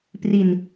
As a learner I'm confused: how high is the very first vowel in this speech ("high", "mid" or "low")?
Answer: high